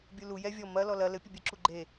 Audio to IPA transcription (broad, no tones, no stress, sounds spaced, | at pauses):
bʲ u l u j ɛ vʲ ɔ m ɐ l ɔ l ɐ l ɘ pʲ ɘ bʲ ɨ ǁ u ɡ͡ǃ e